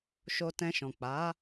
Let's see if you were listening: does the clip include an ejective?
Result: no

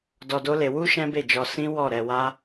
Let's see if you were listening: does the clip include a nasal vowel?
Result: yes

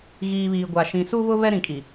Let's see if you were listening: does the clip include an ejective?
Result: yes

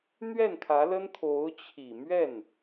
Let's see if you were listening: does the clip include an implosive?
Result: no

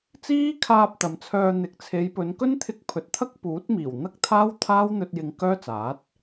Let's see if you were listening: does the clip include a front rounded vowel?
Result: yes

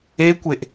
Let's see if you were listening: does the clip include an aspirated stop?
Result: no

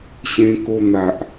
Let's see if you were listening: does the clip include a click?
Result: no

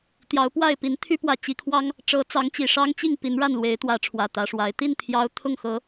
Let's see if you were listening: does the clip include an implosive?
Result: no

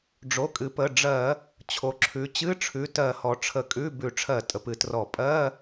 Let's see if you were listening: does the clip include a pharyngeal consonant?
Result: no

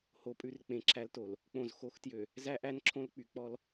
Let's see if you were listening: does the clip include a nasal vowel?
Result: yes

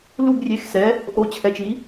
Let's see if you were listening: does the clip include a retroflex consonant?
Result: no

